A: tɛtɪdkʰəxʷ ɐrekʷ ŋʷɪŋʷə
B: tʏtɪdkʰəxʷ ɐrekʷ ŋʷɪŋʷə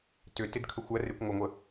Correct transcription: B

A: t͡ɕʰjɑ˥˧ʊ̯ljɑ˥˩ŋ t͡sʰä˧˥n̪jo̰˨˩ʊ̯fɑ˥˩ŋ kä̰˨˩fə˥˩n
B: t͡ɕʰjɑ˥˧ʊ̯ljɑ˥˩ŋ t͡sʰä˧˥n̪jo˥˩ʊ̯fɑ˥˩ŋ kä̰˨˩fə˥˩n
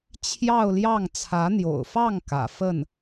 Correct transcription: A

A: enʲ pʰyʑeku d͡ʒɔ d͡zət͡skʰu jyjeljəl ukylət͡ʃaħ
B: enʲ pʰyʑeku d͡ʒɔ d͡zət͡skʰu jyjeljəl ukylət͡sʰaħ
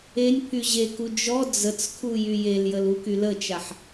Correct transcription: A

